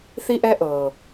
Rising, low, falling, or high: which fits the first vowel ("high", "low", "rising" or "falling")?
high